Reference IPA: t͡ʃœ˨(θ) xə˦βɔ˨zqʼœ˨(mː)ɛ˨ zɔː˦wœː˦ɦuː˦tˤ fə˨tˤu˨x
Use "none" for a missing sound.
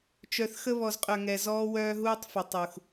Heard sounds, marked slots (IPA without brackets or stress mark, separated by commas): θ, ŋ